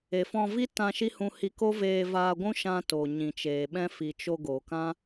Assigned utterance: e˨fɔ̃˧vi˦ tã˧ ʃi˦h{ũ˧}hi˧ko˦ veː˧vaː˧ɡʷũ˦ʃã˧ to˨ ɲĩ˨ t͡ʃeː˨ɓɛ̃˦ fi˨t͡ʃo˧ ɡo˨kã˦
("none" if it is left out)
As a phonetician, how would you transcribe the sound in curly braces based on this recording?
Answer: ũ˧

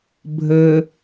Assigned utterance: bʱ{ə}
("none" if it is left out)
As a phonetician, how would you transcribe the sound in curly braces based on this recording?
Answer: ə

